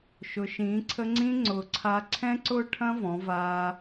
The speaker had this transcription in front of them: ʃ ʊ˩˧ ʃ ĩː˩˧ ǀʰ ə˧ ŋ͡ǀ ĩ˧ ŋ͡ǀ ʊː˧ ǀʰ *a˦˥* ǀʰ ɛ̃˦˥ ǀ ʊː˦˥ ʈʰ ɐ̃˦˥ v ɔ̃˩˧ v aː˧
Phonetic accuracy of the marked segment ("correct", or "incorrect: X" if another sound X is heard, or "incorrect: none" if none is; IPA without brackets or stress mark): correct